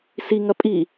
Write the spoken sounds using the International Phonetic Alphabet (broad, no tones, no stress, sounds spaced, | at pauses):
s i ŋ ɐ pʼ i